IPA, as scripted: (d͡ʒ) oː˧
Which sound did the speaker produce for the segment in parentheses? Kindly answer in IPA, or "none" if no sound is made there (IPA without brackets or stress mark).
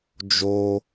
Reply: d͡ʒ